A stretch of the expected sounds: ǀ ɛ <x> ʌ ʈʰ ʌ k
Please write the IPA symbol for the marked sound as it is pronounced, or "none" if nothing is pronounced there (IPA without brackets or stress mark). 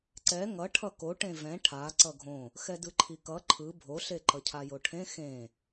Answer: ŋ